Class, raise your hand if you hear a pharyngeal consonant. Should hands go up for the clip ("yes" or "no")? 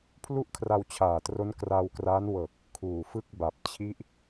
no